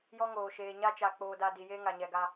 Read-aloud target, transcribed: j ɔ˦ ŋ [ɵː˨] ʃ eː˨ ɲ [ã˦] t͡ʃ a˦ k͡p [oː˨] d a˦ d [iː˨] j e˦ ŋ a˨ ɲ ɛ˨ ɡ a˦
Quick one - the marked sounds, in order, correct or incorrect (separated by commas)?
incorrect, incorrect, incorrect, incorrect